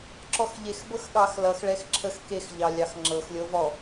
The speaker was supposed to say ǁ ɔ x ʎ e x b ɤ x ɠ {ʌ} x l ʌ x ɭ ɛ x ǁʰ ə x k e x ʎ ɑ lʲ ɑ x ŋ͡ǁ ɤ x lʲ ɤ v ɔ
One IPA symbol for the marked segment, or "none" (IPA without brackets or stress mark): ɑ